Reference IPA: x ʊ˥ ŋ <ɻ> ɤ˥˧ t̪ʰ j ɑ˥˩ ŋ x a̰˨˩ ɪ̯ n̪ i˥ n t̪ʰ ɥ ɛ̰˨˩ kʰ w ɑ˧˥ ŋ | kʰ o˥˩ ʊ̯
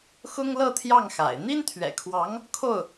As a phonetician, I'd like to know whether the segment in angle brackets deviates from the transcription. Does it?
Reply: yes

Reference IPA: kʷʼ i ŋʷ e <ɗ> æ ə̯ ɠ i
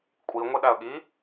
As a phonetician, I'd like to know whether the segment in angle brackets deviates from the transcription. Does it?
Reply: no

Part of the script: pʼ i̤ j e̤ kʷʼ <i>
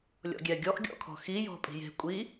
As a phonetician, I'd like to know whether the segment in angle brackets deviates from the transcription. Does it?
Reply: no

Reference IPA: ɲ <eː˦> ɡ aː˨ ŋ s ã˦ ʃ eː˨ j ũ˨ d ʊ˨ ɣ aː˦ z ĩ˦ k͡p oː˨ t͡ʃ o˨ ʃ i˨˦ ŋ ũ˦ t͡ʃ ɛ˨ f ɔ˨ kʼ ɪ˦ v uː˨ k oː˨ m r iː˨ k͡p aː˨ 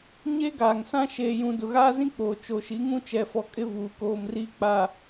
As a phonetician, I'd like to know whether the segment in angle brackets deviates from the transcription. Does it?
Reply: no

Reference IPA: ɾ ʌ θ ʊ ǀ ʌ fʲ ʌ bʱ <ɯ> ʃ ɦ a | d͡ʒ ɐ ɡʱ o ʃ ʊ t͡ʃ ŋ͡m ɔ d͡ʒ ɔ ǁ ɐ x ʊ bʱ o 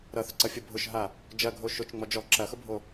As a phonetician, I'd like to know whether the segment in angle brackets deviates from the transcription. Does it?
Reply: yes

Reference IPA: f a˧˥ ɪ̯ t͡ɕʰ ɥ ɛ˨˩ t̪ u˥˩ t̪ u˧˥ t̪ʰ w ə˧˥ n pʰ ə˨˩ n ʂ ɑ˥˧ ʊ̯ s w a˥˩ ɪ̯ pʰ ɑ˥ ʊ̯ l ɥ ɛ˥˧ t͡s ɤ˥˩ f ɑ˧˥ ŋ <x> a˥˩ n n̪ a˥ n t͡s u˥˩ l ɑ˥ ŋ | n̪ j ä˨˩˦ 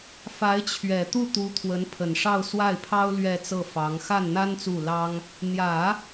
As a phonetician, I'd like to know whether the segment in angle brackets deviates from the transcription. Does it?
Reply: no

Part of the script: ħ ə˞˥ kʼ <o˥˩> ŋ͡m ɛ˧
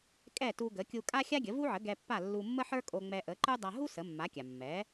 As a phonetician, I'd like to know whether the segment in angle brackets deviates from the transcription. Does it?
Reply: yes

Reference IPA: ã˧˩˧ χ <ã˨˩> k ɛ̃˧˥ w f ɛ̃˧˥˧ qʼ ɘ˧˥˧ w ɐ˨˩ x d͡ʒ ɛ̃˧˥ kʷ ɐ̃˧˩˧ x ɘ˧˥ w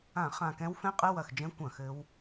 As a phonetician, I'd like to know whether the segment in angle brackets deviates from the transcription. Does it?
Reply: no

